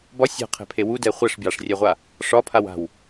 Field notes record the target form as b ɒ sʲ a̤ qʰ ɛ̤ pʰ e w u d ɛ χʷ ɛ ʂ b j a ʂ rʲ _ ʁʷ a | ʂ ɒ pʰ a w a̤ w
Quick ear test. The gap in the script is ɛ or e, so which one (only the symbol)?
ɛ